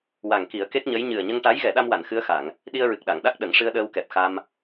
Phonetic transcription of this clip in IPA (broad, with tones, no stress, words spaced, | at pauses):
wa˨˩ŋ ki˨˩˦ə̯ke˦˥k̚ɲə˧˥j ɲɨ˨˩ə̯ɲə˧ŋʈa˧˥j ɣɛ˨˩˦ɗa˧mwa˨˩˨n xɨ˧˥ə̯xa˨˩˨ŋ | ɗi˧ə̯ɹɨ˨˩k̚ɗa˨˩˨ŋɗa˦˥k̚ ɗə˨˩˦ŋʂɨ˧ə̯ɗəː˧wkɛ˨˩p̚ xa˧m